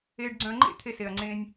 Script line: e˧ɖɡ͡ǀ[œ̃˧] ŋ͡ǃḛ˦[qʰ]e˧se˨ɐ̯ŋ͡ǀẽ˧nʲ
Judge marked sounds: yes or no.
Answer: yes, no

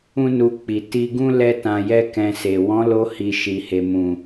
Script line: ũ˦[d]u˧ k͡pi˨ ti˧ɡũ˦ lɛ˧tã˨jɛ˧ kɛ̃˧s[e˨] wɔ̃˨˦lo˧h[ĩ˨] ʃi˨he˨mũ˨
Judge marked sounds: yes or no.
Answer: no, yes, no

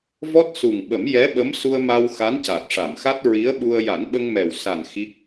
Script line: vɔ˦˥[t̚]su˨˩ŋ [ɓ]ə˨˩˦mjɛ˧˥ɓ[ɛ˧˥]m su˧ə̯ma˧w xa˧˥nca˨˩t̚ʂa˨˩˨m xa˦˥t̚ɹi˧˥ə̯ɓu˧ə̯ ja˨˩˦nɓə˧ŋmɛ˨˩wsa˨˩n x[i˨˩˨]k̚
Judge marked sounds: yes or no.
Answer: yes, yes, no, no

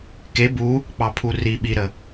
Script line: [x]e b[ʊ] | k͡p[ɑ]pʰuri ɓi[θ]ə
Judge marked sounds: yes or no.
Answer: no, no, yes, no

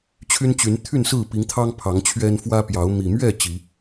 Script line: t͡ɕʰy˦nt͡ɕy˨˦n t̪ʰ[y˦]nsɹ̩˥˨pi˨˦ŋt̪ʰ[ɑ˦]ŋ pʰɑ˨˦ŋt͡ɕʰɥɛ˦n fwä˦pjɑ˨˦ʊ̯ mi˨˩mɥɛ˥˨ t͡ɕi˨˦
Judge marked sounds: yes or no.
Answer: no, yes

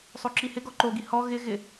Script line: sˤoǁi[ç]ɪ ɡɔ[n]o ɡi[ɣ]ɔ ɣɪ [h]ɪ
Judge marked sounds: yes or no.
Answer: no, no, no, no

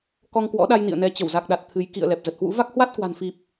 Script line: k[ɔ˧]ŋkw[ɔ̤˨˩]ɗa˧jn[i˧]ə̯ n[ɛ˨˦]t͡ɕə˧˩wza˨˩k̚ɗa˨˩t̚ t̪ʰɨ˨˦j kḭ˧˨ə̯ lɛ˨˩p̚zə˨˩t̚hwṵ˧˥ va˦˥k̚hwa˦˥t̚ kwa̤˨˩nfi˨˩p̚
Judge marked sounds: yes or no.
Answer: yes, no, no, yes

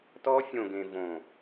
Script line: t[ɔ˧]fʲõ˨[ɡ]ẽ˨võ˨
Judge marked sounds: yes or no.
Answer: yes, yes

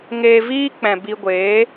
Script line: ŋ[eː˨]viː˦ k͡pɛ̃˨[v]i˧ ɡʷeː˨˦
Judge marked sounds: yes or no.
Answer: no, no

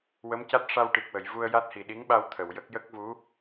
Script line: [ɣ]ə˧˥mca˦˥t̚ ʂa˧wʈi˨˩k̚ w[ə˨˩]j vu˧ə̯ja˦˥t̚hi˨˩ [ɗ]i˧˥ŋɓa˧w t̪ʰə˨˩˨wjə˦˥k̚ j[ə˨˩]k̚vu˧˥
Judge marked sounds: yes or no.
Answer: no, no, yes, no

